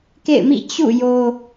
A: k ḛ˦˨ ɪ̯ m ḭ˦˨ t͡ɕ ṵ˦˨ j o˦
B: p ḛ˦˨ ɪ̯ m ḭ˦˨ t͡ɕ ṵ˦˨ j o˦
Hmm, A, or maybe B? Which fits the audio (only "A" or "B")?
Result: A